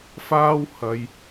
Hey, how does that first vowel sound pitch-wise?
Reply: high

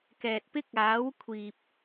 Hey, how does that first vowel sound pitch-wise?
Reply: low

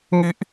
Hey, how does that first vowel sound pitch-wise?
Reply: high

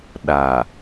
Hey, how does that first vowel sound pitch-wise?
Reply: low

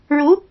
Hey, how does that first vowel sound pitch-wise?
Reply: rising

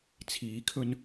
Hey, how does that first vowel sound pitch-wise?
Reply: rising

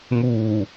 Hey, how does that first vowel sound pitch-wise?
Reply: low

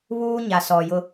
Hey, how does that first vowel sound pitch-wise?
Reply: high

